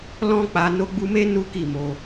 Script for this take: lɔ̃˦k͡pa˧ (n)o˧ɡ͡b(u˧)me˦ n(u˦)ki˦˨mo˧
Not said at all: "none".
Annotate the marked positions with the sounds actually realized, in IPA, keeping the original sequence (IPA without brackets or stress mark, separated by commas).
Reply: n, u˧, u˦